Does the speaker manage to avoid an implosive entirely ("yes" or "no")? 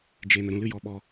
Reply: no